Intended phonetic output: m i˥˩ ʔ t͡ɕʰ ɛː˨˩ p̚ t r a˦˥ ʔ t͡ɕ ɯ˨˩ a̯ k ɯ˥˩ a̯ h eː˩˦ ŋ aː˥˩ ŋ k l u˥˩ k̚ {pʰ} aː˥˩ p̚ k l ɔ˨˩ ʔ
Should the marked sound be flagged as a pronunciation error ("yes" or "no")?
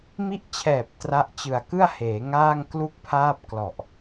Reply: no